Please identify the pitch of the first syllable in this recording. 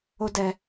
high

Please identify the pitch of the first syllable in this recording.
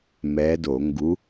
rising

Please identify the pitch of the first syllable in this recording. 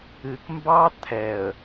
low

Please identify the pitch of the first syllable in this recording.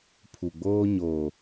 low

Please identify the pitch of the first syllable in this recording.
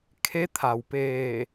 rising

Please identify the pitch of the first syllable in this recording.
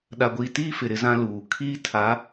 low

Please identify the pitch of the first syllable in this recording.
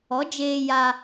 rising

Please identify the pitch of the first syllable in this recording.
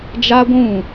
high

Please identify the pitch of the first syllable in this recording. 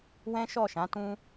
high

